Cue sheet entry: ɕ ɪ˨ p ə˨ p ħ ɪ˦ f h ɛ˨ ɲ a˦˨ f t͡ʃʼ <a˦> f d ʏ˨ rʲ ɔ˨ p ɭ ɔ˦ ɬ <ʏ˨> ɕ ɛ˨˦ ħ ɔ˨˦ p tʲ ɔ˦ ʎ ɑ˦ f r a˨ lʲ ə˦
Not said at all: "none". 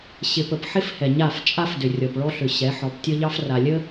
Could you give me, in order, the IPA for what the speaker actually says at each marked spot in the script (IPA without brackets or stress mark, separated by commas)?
a˦, ʏ˨